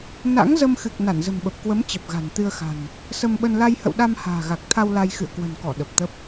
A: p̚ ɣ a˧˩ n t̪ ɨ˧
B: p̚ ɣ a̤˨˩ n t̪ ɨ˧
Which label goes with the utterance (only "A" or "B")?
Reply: B